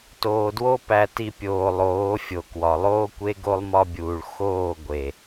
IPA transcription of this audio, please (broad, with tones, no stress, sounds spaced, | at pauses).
t oː˨ d w o˦ p æ˨ t i˨ pʲ oː˨ lˠ oː˨˦ fʲ o˨ k w ɒ˨ lˠ oː˦ kʷ e˦ ɡ o˦ lˠ m ɒ˦ bʲ uː˨ ɭ x oː˦˨ ɡʷ e˨